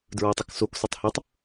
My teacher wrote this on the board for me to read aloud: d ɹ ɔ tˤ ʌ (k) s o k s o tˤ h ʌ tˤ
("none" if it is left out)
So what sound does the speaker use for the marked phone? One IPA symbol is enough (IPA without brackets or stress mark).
k